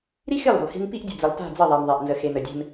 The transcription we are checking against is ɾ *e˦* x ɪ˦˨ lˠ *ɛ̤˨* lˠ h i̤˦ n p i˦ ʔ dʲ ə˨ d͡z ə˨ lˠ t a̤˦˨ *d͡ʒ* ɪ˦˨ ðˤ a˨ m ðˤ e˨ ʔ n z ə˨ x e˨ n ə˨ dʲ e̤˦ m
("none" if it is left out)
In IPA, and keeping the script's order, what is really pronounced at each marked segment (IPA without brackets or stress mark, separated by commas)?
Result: i˦, e̤˨, d͡z